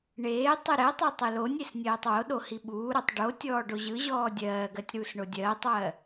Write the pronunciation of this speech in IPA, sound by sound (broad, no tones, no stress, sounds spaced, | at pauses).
ɳ eː tˤ ɯ ɾ ɛ tˤ ɛ tˤ ɯ l o nʲ e s nʲ ɜː tˤ w o ɗ o h i ɓ uː ɾ ɔ tˤ ɖ o tʲ ɔː ɖ o ʑ ɯ ʑ ɔː dʲ ɜː ɡ ɜ tʲ ɾ uː s ɳ o dʲ ɜː tˤ w ɜ